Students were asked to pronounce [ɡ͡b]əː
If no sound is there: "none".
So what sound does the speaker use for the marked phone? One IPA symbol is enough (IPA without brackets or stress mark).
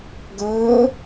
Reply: ɡ